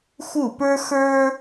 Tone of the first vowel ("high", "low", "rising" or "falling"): falling